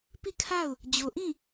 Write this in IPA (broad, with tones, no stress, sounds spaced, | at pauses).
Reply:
p i˦˨ kʰ a˦˨ ʊ̯ | d͡ʑ o˨ ʔ ĩ˦˨